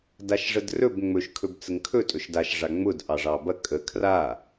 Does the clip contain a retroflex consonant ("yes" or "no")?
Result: yes